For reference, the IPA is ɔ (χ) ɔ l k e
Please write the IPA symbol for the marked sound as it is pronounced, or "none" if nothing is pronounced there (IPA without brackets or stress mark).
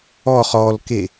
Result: χ